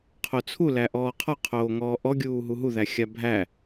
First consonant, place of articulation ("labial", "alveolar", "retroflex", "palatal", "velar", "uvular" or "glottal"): uvular